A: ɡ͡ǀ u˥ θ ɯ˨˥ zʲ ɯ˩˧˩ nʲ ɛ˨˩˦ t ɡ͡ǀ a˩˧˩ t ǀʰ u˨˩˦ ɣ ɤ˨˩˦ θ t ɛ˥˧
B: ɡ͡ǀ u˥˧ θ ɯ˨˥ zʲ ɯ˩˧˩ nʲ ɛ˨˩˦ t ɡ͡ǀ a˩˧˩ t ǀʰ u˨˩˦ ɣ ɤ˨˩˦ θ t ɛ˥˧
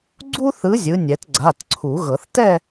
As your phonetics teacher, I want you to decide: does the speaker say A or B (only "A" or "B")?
A